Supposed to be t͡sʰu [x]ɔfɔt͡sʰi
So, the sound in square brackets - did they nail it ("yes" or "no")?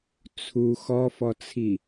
yes